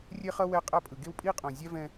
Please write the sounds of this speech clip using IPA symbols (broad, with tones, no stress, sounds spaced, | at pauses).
rʲ e˦ χ ʌ˦ w ɛ˦ qʼ a˦ pʼ ɯ˨ ɡ e˦ w pʼ i˦ qʼ õ˨ zʲ a˦ v ɛ̃˦